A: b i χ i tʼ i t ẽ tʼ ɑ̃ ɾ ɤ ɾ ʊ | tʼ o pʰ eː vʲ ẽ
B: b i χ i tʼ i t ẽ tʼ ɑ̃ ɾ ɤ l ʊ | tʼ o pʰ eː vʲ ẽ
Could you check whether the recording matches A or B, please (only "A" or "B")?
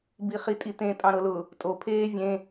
B